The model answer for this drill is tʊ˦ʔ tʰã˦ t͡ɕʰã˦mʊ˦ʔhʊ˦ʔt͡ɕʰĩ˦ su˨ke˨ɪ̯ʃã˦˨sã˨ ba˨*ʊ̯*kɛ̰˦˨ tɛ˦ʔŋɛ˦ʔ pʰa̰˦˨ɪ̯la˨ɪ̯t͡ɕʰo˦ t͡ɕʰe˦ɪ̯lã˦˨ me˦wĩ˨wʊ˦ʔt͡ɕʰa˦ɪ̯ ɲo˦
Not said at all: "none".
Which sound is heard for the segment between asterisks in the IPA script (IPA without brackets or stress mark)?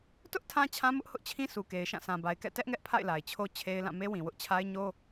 ɪ̯